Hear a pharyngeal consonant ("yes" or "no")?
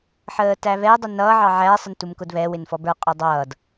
yes